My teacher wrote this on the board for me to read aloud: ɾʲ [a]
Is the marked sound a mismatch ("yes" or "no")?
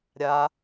no